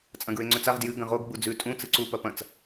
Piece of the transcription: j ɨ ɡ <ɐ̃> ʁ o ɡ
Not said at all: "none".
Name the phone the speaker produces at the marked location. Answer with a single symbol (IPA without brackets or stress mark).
ɐ̃